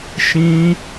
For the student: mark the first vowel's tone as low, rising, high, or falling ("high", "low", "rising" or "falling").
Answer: high